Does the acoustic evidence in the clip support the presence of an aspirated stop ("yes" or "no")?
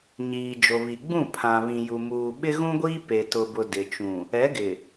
yes